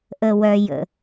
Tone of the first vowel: low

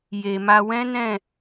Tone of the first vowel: low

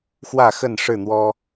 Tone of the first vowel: falling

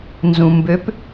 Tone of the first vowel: low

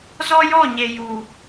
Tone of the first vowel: high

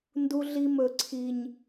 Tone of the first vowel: high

